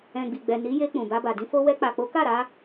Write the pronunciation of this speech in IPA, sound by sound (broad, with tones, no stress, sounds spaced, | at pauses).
ɛ̃˨ ɡ͡b i˨ ɡ͡b ɛ˨ n i˨˦ j e˧ k͡p ũ˨ b a˧ b a˨ d ĩ˧ f o˧ w ɛ˧ k͡p a˨ k͡p o˨˦ k a˦˨ ɾ a˧